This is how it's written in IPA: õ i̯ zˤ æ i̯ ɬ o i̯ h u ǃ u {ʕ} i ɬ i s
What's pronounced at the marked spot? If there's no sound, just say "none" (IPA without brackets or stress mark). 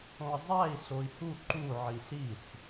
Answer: ʕ